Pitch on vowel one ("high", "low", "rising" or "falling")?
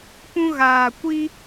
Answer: high